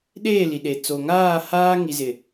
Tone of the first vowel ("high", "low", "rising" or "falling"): falling